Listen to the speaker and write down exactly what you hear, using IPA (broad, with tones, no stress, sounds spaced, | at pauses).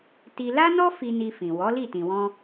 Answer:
t i˧ l a˦ n ɔ˦ f i˧ n i˧ f ĩ˨ w ɔ˨˦ l i˦˨ t ĩ˨ w ɔ̃˧